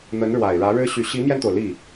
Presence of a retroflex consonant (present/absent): present